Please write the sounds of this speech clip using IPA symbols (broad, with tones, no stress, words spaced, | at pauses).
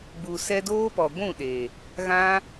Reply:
ɡ͡bu˨sɛ˧ doː˦pɔ˨ ɡʷũ˦˨ɗe˨ | ɣã˦